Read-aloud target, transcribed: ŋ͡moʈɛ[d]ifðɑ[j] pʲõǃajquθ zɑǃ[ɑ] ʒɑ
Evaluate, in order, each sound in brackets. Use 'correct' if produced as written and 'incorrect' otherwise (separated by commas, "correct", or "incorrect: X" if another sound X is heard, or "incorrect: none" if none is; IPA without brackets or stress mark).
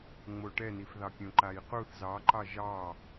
incorrect: n, incorrect: none, correct